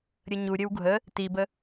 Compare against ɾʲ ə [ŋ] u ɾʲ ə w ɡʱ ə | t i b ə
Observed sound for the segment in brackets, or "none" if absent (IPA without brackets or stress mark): ɲ